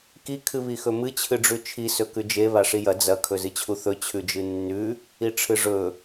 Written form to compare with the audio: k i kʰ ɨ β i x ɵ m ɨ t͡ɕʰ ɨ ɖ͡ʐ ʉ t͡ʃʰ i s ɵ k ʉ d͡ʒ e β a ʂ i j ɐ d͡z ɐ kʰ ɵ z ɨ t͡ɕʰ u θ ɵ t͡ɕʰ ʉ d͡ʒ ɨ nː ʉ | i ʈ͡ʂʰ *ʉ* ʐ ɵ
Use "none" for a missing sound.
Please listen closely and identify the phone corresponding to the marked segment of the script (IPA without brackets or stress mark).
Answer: ɨ